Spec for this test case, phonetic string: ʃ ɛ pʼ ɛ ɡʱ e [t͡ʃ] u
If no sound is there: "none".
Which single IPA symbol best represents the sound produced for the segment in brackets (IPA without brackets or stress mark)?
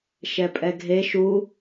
ʃ